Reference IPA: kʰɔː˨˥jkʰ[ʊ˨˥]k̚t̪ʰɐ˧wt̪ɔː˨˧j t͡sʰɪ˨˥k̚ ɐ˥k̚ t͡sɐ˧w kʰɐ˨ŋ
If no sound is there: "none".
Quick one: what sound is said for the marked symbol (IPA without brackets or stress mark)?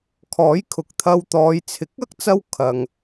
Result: ʊ˨